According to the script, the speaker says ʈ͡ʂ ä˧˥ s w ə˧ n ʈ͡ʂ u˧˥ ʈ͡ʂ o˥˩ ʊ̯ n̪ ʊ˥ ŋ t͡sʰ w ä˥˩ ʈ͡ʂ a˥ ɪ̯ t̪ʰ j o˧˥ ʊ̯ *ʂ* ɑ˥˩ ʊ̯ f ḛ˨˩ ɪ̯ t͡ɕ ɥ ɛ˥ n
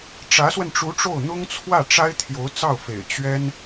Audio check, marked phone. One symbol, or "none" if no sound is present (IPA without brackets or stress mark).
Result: t͡s